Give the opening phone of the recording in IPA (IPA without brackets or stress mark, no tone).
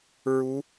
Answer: ɹ